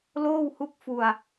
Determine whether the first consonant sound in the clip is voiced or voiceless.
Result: voiced